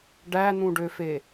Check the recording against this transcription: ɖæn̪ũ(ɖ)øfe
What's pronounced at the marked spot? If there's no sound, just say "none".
ɖ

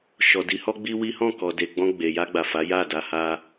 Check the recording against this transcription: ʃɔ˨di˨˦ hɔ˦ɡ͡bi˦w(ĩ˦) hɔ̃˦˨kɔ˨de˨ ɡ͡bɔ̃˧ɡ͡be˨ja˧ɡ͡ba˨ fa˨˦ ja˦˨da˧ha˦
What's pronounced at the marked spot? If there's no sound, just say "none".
i˦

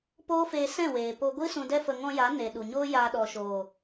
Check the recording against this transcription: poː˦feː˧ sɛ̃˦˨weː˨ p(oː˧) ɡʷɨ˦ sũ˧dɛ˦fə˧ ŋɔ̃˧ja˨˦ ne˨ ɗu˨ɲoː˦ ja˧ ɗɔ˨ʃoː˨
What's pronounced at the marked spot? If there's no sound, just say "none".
o˧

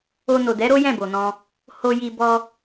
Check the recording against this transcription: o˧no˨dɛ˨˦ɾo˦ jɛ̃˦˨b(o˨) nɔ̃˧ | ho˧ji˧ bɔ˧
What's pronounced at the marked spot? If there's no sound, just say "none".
o˨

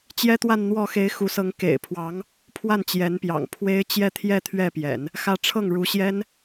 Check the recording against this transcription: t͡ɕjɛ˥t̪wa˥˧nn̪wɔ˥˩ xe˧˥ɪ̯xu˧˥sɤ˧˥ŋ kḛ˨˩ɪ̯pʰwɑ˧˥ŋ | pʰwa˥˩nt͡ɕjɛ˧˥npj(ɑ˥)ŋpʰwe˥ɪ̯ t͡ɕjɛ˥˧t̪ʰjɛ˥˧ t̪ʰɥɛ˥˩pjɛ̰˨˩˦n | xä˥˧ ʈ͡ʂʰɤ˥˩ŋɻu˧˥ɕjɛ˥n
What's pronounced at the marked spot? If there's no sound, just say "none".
ɑ̰˨˩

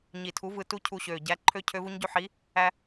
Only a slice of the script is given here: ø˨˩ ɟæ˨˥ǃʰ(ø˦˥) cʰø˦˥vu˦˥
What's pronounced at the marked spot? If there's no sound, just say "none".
ø˦˥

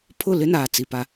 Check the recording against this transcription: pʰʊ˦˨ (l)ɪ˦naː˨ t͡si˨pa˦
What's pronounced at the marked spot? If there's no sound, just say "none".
l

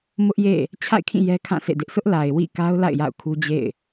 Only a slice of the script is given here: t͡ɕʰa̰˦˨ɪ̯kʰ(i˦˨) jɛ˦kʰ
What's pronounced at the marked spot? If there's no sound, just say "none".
ĩ˦˨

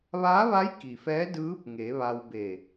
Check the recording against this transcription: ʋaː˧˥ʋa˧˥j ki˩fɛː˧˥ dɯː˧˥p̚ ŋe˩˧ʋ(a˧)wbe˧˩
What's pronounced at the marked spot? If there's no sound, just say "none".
a˧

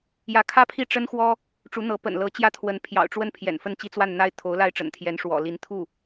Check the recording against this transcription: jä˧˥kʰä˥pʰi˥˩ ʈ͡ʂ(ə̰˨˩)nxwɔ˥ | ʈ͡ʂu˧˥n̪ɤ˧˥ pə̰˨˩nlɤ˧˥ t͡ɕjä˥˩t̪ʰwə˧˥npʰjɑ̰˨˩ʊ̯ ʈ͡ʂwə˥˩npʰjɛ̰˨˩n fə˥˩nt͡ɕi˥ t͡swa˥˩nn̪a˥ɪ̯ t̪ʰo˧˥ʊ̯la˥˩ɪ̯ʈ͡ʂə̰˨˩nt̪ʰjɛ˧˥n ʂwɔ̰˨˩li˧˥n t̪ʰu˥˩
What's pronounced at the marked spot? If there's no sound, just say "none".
ə˥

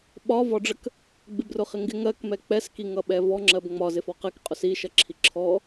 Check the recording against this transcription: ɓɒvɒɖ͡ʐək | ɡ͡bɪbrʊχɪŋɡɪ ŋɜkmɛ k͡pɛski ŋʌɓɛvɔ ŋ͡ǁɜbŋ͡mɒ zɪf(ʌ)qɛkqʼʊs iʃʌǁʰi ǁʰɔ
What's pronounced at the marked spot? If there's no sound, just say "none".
ɒ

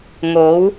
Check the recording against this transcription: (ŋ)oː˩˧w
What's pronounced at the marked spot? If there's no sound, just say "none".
ŋ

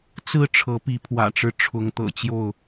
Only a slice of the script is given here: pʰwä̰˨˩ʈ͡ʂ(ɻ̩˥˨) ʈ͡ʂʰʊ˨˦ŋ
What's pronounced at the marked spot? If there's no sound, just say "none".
ɻ̩˦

